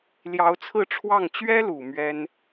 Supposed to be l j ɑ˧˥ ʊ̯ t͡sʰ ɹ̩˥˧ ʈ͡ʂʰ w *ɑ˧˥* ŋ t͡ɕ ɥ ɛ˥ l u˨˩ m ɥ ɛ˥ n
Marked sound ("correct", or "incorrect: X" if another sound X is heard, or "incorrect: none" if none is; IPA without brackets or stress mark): incorrect: ɑ˥˩